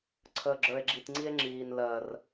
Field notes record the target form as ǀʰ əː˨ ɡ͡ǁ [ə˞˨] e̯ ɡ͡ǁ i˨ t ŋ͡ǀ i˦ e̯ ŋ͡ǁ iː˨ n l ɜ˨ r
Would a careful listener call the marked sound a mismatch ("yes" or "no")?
no